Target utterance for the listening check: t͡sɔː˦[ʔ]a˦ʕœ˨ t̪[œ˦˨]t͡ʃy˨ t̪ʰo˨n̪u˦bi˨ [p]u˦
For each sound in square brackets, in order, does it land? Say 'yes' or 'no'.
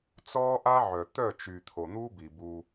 yes, yes, no

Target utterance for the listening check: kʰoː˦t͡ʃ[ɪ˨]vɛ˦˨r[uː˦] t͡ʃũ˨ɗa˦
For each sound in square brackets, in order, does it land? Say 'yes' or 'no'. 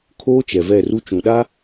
no, no

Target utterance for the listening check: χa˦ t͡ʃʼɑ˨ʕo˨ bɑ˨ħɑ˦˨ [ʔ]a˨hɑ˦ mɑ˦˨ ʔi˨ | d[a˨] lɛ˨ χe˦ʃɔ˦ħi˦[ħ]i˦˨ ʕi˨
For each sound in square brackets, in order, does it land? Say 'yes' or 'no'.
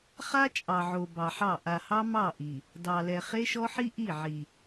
yes, no, no

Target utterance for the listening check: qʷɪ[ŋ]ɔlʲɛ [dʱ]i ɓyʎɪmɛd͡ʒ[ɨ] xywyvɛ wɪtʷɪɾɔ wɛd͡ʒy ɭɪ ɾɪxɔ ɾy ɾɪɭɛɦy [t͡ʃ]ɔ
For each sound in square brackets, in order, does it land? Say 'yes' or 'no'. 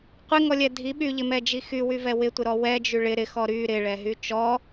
yes, yes, no, yes

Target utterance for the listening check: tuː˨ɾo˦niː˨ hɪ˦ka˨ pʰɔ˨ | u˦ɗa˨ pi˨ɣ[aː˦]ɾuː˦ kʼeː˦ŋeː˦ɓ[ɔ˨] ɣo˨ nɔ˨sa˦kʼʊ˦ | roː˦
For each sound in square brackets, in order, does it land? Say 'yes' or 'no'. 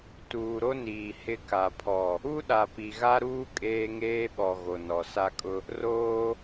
no, yes

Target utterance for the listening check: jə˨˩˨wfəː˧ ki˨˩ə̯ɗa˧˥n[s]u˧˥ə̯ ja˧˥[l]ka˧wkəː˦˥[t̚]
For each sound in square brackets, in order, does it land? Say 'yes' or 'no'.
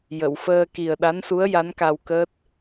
yes, no, yes

